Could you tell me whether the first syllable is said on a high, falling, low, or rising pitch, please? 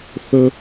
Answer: high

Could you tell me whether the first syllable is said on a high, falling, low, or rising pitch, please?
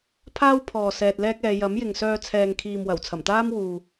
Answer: high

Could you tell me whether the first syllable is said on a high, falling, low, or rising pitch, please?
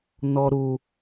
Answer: high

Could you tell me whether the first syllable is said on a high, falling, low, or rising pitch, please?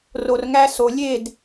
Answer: low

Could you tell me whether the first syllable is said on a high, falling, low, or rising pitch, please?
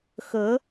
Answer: rising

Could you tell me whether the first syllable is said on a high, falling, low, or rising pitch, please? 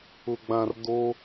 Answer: low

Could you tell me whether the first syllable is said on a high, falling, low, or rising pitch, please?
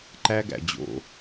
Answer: high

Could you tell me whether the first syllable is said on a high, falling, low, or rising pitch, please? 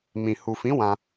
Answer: low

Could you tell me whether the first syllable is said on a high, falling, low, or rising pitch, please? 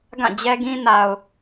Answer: falling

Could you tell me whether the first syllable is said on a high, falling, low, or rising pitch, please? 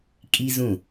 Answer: high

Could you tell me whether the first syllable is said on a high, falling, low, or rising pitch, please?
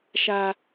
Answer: high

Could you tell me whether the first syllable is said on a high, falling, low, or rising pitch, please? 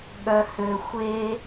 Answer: low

